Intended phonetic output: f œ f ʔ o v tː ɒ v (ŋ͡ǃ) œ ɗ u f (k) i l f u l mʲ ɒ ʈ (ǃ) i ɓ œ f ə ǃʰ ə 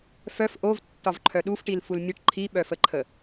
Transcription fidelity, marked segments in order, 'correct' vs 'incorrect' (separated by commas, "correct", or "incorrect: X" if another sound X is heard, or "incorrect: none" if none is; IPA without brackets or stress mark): incorrect: ǃʰ, incorrect: ʈ, incorrect: ǃʰ